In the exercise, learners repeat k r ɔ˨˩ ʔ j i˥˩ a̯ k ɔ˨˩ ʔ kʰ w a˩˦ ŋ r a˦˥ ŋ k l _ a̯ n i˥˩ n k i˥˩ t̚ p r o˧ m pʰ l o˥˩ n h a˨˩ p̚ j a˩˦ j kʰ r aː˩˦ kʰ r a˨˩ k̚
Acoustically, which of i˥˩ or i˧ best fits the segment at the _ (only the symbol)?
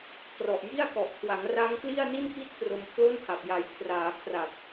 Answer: i˥˩